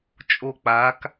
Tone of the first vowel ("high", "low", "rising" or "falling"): falling